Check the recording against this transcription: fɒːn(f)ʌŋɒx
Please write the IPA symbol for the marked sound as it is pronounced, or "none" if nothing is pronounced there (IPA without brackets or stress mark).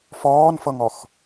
f